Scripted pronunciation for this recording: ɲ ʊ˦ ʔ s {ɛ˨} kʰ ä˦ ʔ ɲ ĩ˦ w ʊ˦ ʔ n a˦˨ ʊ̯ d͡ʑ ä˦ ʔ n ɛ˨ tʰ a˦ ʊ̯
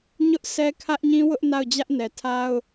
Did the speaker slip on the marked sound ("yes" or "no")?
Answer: yes